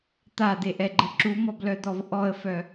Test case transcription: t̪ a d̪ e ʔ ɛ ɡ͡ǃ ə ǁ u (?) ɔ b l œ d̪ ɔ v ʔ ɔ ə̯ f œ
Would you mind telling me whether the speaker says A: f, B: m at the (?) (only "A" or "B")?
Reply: B